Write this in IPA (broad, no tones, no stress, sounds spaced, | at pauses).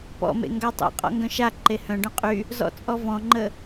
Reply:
p ɔ̰ m ḛ ŋ ɡ a tˤ ḛ qʼ ɔ̰ ŋ ɡ œ̃ ʃ a ǃ e h œ̃ ɖ œ̃ qʼ y | z ɔ̰ t͡sʼ ɔ v ɔ̃ ŋ͡ǃ ə